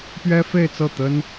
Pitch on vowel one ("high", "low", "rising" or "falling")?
high